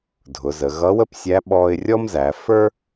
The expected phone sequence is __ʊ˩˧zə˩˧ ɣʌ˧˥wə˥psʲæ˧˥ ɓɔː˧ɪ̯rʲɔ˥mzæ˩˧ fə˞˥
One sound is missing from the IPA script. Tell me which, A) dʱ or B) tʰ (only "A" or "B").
A